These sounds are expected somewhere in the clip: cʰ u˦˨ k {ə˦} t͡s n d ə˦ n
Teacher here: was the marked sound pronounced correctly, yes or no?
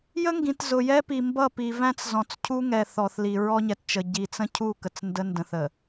no